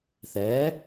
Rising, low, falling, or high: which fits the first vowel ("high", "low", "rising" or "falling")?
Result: rising